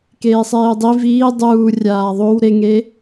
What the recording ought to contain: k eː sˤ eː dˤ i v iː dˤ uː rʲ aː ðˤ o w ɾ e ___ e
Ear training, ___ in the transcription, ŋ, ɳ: ŋ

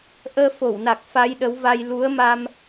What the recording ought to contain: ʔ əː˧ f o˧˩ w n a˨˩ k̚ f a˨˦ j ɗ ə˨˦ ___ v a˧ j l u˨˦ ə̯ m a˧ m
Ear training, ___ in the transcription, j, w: w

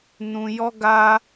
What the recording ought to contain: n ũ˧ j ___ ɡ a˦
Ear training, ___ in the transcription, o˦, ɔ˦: ɔ˦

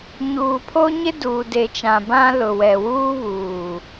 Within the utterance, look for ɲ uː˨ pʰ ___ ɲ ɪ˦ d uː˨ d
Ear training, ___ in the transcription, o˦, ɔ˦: o˦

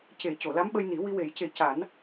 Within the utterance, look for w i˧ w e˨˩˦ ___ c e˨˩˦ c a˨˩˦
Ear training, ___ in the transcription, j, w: j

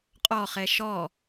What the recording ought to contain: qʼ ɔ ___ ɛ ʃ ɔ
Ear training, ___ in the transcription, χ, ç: χ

